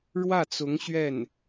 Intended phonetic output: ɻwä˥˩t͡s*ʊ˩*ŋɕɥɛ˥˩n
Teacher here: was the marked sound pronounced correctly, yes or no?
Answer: no